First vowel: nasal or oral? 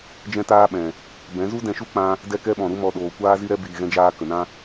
nasal